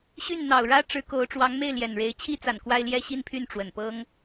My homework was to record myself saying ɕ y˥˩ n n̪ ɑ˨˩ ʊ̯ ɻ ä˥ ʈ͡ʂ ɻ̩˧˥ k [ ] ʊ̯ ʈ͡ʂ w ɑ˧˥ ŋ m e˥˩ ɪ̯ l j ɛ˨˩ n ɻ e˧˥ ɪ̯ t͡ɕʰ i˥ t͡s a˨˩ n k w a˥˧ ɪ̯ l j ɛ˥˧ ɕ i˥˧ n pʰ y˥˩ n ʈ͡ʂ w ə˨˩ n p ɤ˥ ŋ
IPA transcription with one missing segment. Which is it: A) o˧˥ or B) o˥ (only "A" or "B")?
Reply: A